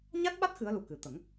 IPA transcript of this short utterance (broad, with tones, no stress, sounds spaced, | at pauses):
ɲ a˦˥ t̚ ɓ a˦˥ t̚ x ɨ˧˥ ə̯ l u˨˩ k ɨ˨˩ t̪ ə˨˩˦ ŋ